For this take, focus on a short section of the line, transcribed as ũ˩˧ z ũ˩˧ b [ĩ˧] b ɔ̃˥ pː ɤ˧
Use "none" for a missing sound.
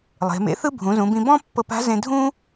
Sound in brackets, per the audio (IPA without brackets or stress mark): ĩ˧